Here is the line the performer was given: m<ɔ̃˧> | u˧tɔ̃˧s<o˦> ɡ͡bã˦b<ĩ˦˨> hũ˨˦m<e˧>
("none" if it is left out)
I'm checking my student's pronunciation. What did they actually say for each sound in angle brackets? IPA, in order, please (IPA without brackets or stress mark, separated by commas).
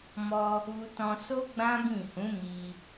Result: ɔ˧, o˦, ĩ˦˨, i˧